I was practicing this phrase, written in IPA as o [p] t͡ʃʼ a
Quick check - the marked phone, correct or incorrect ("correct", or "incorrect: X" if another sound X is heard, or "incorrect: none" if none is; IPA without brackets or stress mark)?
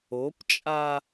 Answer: correct